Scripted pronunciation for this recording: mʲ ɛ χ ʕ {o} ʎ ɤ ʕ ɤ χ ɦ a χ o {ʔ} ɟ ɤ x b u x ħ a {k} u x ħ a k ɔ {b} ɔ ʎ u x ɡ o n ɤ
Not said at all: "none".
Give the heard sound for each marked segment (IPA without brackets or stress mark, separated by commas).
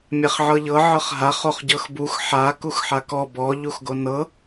ɤ, χ, k, b